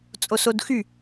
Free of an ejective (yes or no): no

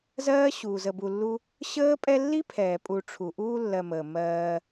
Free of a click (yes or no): yes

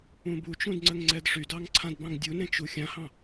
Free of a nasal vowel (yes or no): no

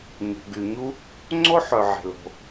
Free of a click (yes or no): no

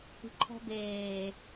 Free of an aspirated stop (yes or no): no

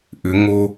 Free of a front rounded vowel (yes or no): no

